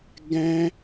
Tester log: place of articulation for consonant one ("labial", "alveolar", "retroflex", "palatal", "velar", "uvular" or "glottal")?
velar